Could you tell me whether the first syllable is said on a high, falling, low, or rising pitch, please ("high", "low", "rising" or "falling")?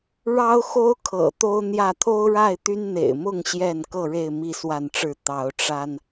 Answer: high